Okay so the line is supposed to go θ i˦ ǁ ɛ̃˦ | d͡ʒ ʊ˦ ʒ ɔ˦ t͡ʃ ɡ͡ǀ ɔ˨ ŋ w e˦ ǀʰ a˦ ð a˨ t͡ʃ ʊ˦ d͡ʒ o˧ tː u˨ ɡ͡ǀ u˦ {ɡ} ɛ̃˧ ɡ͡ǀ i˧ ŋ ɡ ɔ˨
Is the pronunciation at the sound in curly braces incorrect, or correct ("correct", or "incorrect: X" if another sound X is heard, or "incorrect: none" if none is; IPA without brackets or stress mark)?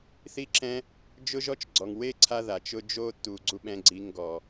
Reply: incorrect: ɓ